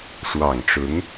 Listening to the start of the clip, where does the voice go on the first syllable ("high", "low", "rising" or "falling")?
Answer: low